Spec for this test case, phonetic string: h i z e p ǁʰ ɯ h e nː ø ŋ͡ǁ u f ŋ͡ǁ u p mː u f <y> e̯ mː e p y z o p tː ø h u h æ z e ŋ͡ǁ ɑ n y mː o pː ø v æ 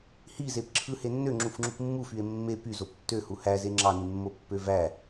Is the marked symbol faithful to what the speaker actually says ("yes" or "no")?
yes